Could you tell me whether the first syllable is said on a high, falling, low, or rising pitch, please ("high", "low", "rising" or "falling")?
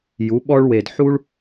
rising